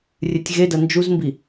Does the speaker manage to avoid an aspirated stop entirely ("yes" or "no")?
yes